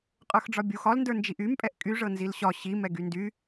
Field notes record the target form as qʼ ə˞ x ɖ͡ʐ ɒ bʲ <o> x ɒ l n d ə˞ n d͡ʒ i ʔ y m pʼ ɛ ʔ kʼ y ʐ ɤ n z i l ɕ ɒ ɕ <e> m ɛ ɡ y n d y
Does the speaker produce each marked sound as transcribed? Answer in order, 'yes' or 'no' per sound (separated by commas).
no, no